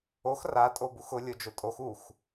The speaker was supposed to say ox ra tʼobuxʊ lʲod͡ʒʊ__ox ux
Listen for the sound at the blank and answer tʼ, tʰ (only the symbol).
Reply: tʼ